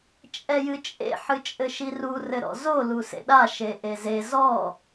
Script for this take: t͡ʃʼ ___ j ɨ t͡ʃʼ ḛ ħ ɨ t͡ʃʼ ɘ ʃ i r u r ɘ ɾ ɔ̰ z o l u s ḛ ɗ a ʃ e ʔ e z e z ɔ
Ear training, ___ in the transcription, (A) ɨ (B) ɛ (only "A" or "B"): B